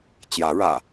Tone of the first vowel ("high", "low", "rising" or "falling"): rising